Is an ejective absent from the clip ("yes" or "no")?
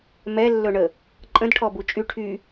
no